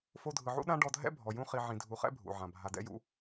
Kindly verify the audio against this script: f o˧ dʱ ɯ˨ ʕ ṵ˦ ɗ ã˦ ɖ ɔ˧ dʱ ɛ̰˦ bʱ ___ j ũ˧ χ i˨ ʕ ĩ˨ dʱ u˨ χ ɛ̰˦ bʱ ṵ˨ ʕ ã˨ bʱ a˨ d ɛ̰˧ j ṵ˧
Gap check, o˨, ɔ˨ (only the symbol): ɔ˨